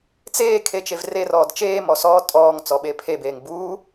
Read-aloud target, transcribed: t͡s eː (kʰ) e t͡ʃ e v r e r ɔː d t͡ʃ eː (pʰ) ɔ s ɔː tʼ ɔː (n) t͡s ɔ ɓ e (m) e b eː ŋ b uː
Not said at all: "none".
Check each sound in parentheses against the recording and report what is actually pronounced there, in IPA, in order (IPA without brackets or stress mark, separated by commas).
kʰ, m, ŋ, pʰ